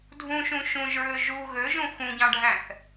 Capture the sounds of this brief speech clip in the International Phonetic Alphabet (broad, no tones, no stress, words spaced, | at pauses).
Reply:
dʱũʃũ ʃũʒɹø ʒu ɣøʒũ xũɟɑ̃ɖʱæ̃θ